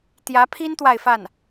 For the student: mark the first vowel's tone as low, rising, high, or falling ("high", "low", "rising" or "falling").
rising